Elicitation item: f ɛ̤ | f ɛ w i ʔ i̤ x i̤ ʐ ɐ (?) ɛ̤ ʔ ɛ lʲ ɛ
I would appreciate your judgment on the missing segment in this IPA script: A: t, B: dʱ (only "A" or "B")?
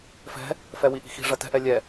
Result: A